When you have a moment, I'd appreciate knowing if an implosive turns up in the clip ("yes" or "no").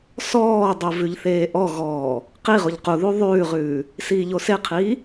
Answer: no